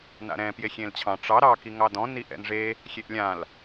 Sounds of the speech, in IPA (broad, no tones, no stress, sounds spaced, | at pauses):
n a̰ ɾ ɛ̃ p j e xʲ ẽ l t͡ɕʰ ɑ̃ ʈ͡ʂ ɑ ɾ ɑ k i ŋ ɑ d ɔ̃ n i ʔ ɛ̰ n ʐ e | xʲ e ʔ lʲ ã l